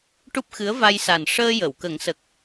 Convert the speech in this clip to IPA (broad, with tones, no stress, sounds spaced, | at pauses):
ʈ u˦˥ p̚ x ɨ˧˥ ə̯ v a˧ j s a˨˩ n ʂ əː˧ j ə˨˩˨ w k ə˨˩˦ ŋ s ə˨˩ k̚